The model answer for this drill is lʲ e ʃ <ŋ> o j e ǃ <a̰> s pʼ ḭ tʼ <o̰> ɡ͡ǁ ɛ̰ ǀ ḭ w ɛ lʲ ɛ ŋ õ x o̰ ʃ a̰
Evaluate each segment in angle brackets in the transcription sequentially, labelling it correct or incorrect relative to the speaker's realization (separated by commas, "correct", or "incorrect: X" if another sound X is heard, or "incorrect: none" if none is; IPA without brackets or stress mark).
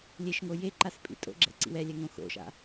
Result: correct, incorrect: a, correct